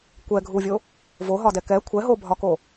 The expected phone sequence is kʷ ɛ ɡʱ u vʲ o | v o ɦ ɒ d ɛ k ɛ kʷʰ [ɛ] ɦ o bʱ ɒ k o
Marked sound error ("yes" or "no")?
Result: no